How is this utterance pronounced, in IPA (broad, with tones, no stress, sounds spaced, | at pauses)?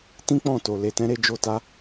t ĩ˦ k͡p ɔ̃˦˨ t o˨ l e˧ t ɛ̃˦ ɾ e˦ d͡ʒ o˦ t a˦